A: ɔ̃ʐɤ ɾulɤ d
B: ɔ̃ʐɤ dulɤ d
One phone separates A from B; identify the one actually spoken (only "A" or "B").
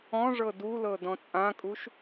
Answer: B